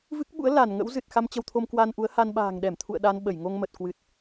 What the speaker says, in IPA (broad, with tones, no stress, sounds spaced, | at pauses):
v ɨ˦˥ k̚ ɓ ṵ˧˥ ə̯ l a˧˩ n ŋ ə̰˧˥ w z ɨ˨˩ t̚ x a˧ m t͡ɕ ə˧ w t̪ʰ o˧ m k w a˧ n ʔ u˨˦ ə̯ h a˧ n ɓ a̤ː˨˩ ŋ ɗ ɛ˧˩ m t̪ʰ ṵ˧˨ ə̯ ɗ a˧ n ɓ ə˧˩ j ŋ o˧ ŋ m ə˨˩ t̚ k w ɨ˨˩ t̚